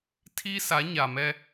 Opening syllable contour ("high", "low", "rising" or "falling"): high